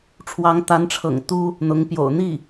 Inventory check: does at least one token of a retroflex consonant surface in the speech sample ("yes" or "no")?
yes